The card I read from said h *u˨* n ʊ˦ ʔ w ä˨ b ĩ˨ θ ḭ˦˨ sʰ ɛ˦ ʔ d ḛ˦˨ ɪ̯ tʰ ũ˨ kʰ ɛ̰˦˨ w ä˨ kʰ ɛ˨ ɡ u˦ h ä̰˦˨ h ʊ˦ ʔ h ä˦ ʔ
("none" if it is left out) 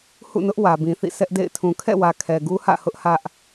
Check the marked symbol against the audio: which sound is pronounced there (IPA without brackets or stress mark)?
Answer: ṵ˦˨